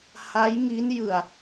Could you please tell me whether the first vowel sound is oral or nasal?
oral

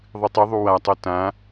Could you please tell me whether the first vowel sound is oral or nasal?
oral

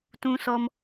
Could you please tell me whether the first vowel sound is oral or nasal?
nasal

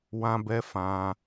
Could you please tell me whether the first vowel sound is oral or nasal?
nasal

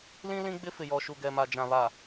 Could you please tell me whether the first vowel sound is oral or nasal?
nasal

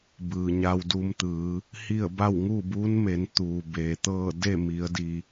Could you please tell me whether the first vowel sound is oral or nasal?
oral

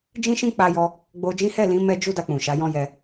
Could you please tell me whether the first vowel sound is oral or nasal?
nasal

